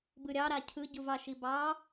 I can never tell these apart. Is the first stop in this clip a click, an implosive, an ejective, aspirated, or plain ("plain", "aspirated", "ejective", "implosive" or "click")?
plain